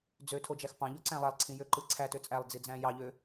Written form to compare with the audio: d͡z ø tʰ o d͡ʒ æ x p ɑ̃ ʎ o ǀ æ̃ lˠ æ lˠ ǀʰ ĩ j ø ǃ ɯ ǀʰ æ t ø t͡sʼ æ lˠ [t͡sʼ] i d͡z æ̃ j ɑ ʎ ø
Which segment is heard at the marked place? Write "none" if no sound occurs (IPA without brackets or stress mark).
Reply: d͡z